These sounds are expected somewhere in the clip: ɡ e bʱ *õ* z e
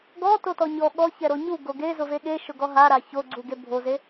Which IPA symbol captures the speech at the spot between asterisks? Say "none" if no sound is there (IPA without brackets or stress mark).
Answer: o